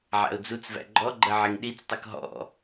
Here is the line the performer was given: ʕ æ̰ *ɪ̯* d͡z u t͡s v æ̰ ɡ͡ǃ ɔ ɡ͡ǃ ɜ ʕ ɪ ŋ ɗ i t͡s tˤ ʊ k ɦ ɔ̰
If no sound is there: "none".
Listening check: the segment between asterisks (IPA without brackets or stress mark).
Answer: ʊ̯